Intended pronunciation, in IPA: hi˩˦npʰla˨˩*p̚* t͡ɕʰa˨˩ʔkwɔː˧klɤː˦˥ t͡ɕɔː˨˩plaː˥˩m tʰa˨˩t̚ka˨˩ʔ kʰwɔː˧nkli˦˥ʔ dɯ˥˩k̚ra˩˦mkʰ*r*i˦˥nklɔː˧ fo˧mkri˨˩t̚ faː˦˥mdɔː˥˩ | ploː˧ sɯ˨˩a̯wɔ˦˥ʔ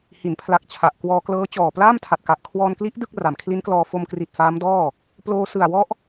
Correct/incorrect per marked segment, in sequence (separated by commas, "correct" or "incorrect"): incorrect, incorrect